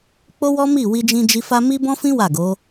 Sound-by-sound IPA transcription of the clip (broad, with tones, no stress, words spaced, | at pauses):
k͡po˦wɔ˦mi˦˨ wi˧d͡ʒĩ˧d͡ʒi˧fa˦ mi˦bɔ̃˦fĩ˦ wa˦˨ɡo˨˦